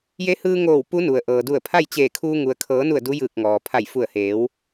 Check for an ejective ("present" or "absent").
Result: absent